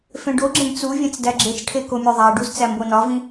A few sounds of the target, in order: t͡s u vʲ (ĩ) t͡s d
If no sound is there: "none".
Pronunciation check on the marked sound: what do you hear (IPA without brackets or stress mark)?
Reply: ẽ